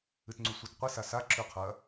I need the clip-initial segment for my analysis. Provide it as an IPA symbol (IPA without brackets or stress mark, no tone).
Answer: ɨ